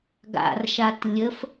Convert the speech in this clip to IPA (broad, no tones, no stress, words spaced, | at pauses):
ɡa̰rʃat lʲəf